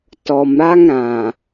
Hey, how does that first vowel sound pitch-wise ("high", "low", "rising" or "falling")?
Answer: low